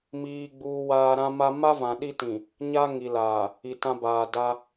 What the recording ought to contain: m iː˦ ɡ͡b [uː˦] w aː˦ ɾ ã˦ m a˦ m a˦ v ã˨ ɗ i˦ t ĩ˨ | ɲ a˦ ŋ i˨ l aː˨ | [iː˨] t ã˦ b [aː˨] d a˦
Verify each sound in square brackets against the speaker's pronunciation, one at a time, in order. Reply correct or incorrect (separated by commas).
correct, incorrect, correct